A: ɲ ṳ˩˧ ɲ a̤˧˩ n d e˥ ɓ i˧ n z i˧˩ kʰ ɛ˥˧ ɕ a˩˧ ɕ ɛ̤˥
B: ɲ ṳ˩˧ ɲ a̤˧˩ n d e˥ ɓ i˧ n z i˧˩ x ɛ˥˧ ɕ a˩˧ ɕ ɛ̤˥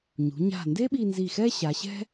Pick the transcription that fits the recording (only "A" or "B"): B